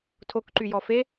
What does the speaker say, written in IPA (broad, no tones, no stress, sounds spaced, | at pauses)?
tʰ o k ǃ y j ɔ f e